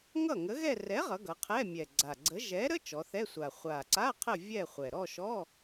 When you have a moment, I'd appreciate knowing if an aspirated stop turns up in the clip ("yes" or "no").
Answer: yes